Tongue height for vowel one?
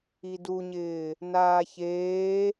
high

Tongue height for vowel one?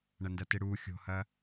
low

